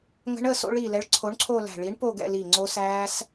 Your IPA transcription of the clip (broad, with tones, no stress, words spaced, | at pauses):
ŋə̤˦˥ɳə˥˧ so̰˦˥ɭi˧˩lɛ˨˥ɭ ǀʰo˨˥ɳǀʰo˥˧læ̤˧˩ ɭi˨˥ɳpo˥˧ɡɛ̰˥˧li˧˩ ŋ͡ǀo˦˥sæː˦˥s